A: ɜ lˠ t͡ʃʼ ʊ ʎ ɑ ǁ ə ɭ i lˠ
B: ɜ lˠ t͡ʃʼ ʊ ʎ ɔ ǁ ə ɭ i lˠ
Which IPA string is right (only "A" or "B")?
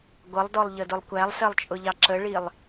A